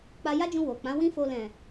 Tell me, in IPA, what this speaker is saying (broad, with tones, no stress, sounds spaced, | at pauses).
k͡p a˧ j a˦ d͡ʒ ũ˧ w o˨ k͡p ã˨˦ w ĩ˦ f o˧ l ɛ̃˨